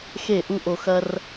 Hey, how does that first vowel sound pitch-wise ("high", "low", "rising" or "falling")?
falling